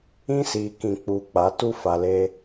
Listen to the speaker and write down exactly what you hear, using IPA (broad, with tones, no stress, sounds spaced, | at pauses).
ĩ˦ s iː˨ k ĩ˨ k͡p uː˨ k͡p a˨˦ t u˦ f a˨ l eː˦